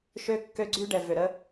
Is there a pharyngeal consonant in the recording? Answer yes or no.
no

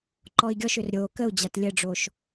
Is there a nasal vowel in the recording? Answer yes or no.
no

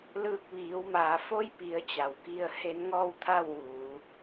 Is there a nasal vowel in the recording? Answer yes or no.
no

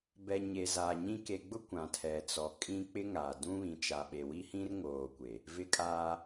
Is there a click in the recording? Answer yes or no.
no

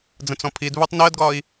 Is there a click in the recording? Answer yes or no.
no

